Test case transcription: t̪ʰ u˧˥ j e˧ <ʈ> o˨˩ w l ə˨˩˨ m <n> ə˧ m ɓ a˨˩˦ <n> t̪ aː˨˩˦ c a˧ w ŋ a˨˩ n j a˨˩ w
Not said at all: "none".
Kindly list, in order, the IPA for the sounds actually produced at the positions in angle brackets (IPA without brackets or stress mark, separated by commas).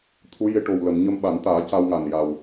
ʈ, ɲ, n